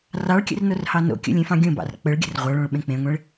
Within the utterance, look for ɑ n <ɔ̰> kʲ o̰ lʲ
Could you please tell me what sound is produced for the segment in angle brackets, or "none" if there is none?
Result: o̰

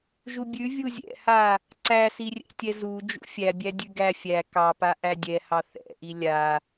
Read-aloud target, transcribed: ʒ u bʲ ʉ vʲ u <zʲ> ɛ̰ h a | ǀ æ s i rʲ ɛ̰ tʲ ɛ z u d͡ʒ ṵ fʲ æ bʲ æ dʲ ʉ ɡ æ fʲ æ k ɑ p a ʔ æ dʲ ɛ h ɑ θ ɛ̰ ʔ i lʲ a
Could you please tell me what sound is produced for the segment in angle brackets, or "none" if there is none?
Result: zʲ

